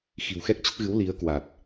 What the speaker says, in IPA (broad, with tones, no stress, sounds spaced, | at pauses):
x i̤˨˩ w x ɛ˦˥ k̚ t͡ɕ ə˦˥ t̚ ɣ ɨ˨˦ w l i˨˦ ə̯ k w a˨˩ t̚